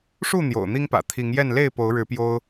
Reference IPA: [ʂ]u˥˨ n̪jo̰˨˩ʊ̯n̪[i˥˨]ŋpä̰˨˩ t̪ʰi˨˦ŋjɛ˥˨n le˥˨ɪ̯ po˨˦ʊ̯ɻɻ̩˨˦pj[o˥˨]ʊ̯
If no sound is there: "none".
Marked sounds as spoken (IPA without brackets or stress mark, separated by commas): ʂ, i˦, o˦